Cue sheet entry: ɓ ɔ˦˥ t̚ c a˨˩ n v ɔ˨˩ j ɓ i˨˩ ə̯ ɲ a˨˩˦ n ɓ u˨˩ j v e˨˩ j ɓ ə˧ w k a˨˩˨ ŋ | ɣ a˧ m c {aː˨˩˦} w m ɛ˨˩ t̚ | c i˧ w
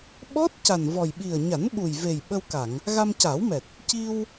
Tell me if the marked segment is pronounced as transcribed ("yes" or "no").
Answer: yes